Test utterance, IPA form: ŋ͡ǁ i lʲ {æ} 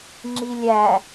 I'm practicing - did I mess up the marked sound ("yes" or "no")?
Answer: no